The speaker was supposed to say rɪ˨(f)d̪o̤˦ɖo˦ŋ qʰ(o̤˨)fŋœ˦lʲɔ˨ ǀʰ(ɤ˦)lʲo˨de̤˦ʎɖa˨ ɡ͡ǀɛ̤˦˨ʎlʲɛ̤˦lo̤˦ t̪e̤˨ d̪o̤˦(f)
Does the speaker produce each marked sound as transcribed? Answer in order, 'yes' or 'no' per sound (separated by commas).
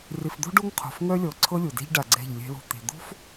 yes, yes, yes, yes